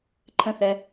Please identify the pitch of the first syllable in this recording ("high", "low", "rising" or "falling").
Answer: falling